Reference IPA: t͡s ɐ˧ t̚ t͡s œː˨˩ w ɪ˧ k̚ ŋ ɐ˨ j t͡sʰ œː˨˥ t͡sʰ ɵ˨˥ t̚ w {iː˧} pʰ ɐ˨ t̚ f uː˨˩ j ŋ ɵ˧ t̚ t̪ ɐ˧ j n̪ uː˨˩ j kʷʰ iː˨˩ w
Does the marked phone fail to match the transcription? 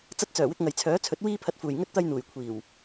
no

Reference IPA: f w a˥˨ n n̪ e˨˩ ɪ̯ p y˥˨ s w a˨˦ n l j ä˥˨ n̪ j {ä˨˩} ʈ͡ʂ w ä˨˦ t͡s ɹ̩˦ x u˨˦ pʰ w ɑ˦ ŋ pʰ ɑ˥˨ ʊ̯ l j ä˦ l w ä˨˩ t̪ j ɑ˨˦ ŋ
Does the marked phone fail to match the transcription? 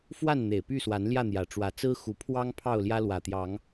no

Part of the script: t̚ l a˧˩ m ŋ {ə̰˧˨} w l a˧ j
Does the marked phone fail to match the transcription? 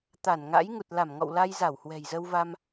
yes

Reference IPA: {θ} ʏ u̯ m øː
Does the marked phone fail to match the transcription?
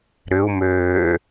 yes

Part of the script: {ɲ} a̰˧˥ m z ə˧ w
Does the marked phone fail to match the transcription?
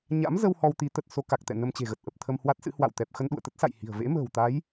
no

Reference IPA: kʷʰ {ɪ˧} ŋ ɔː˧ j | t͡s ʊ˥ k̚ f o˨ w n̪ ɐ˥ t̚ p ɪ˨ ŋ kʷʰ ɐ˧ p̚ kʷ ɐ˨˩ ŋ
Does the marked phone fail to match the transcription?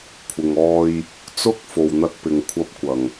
yes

